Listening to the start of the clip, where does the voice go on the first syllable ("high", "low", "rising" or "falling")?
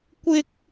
high